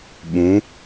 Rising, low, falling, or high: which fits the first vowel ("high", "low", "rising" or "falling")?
rising